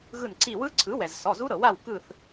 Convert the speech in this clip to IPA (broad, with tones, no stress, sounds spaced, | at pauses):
ɣ ɯ˧˩ n ǀ i˧˩ w ɯ˦˥ ǀʰ ɯ˩˥ w ɛ˩ z s ɔ˩˧˩ z u˦˥ ɾ ɤ˩ w a˥˨ w k ɯ˧˩ θ